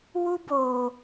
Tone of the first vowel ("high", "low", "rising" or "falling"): high